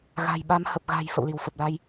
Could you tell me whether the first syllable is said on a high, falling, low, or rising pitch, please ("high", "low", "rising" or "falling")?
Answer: low